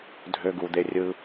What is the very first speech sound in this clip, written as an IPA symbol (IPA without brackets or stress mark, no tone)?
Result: dʱ